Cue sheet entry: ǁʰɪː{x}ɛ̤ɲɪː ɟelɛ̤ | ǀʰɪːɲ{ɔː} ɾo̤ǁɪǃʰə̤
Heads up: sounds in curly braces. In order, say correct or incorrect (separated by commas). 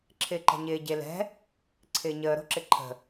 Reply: incorrect, incorrect